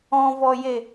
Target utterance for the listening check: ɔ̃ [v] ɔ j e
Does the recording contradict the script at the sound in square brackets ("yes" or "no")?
no